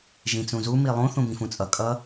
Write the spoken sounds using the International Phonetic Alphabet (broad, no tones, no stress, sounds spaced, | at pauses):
ʒ ĩ t͡s ũ z u m i lˠ ũ θ ũ b ĩ f ũ t͡sʼ ʌ kʼ ʌ